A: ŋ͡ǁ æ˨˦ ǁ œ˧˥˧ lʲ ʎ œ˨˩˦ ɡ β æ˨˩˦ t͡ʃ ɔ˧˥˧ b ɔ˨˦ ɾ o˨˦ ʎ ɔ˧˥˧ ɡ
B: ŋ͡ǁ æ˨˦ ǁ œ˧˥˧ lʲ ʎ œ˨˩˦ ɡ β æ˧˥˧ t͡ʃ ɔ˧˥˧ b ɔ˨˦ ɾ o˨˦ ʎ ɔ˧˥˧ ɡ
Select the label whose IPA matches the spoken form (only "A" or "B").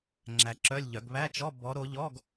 B